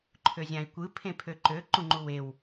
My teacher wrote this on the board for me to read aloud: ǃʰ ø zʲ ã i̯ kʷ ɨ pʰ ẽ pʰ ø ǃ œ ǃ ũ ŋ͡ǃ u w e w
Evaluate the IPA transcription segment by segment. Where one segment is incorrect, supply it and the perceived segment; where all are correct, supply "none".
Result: œ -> ø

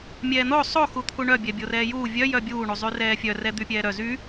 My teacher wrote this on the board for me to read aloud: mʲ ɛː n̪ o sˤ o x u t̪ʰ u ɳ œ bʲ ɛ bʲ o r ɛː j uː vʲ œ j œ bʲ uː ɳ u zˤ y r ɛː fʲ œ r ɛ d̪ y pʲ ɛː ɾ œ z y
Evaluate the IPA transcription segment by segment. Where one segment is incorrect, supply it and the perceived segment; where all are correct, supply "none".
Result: none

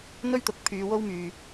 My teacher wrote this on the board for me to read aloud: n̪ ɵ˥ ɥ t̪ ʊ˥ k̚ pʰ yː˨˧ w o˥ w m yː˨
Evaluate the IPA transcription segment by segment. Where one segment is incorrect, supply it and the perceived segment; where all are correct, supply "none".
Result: ʊ˥ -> ʊ˨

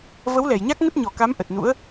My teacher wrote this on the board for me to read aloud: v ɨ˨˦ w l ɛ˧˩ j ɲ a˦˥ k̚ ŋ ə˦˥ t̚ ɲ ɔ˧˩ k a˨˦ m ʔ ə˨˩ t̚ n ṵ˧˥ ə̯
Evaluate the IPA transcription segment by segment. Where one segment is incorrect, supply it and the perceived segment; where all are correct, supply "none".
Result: ɨ˨˦ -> ə˨˦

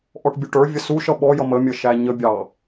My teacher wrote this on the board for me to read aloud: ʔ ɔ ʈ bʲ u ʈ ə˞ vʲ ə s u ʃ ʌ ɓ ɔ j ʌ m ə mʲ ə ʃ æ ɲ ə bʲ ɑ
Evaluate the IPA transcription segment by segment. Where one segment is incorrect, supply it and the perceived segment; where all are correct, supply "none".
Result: none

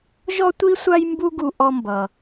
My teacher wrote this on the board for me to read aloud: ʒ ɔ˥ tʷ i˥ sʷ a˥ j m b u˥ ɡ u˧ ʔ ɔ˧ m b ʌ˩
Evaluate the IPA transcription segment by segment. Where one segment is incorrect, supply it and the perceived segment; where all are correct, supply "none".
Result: none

